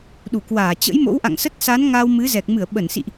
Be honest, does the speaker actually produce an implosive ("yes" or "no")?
yes